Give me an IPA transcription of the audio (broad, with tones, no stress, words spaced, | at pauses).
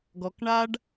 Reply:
ɡɔ˧kɳa˦ɖ